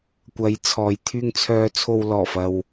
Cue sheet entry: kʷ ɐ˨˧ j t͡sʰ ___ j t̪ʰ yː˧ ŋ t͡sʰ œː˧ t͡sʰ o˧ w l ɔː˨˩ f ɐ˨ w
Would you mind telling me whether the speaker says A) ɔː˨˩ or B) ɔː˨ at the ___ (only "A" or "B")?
B